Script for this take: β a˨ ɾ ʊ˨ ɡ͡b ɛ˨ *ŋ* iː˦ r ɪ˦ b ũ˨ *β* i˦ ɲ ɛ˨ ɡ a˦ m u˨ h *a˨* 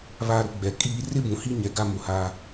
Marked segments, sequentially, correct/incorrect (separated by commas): incorrect, incorrect, incorrect